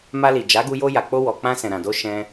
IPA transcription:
ma˧li˨d͡ʒa˨˦ɡu˧ jo˧ja˨k͡po˧ wɔ˨k͡pã˧sɛ̃˨ ɾã˨do˧ ʃɛ̃˧

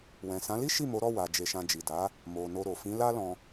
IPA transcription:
wɛ̃˨ sã˨˦li˦ ʃi˦˨ mo˨˦ɾɔ˦˨ wa˨d͡ʒe˨ʃã˨ d͡ʒi˨da˨˦ | mo˨ no˧ɾo˨ fĩ˨˦la˦lɔ̃˧

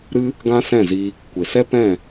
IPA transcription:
ɾɨ˦ | ɡã˦sɛ̃˦˨zi˧ | kʷe˨sɛ˦ pɛ̃˦˨

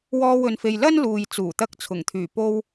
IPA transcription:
wɔː˧wɵ˨nfe˨j lɐ˥nluː˨j t͡suː˨˩t̪ɐ˧k̚t͡sʰʊ˨˩ŋt̪ʰyː˨˩ po˧w

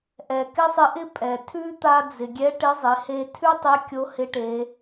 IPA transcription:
ʔɛ˩kɪ˥sˤɪ˧˥ʔɪ˥ pʼɛ˩ tʰʉ˥ t̪a˧d͡zɪ˩ɡʲɛ˧˥ ʈɪ˧˥zˤɪ˩˧he˧ tʰʉ˥tˤe˧˥ kʲo˧˥hɪ˧˥ʈe˩˧

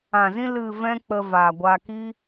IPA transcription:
ã˨zĩ˧ lɨ˨ vɛ̃˦k͡pə˧ vaː˨ɡʷa˧ki˦

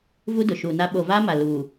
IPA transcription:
vu˦dʊ˨ʃuː˨na˦ ɓo˨vaː˦ma˨ luː˨

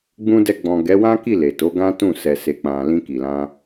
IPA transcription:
ɡ͡bũ˧ dɛ˧ ɡ͡bɔ̃˨ɡɛ˨˦wã˦ki˦˨ le˨to˨˦ ɡã˦tũ˦˨ sɛ˨se˨k͡pã˨ lĩ˧ki˨lã˧

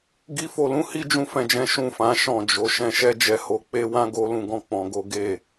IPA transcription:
ɡi˧fo˨lũ˨˦ hi˦d͡ʒũ˧fɛ̃˨d͡ʒɛ̃˨˦ ʃũ˦˨fã˨˦ ʃɔ̃˦˨d͡ʒo˨˦ ʃɛ̃˧ʃɛ˦d͡ʒɛ˧ ho˧k͡pe˦ wã˦ ɡo˦lũ˧ ɡɔ̃˦ k͡pɔ̃˧ɡo˦ ɡe˦˨

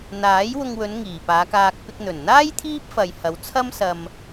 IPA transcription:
n̪aː˨˥j wʊ˧ŋwɵ˨˧n ŋiː˨˩paː˨˧kaː˧k̚ pɪ˧k̚ n̪ɵ˨˩n n̪aː˥j t̪ʰiː˥p̚fɐ˨jhɐ˨˧wt͡sʰɐ˥m sɐ˧m

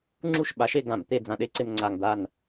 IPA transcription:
ŋ͡ǁu˥˨ʃɓa˨˥ʃe˧ ɡã˧˩˧m t̪e˧d͡zã˧˩˧ɗe˧˥˧ǀe˧m ŋ͡ǀa˧ŋd̪a˥˨n

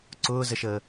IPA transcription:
ǀʊːzəʃəː

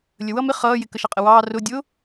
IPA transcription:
lʲəwʌ mɪ χʌːjɪ kəʃɑqʼəwɑː rʊ dʲʊ

